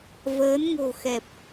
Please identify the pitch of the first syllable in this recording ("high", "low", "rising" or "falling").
rising